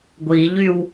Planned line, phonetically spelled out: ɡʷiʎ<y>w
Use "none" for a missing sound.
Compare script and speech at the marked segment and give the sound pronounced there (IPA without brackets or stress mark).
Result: y